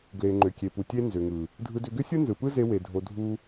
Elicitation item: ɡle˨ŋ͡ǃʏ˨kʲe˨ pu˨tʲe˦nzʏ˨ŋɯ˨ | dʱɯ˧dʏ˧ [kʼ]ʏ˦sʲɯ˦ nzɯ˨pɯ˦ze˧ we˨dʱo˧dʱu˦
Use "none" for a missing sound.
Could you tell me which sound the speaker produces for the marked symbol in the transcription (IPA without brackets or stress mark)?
ɡ